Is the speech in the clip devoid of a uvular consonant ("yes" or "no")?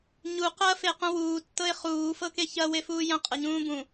no